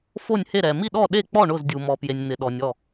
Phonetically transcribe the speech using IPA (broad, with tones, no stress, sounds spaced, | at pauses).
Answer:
f o˥˨ nʲ h e˥˨ ɾ ɛ˨ m i˥˨ ɗ ɔ˥˨ ɗ e˥˨ k͡p ɔ˥˨ ɳ ʊ˥˨ z dʲ u˨ m ɔ˨ p j e˨ nʲ n̪ ɪ˨ ɗ ɔ˨ nʲ ɔ˥˨